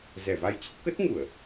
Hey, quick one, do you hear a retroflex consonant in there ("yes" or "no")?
no